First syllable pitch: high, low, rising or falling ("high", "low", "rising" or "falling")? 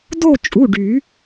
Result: falling